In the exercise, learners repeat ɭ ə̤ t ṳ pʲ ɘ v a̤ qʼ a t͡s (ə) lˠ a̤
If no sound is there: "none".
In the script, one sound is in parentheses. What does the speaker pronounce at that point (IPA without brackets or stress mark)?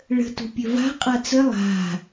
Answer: ə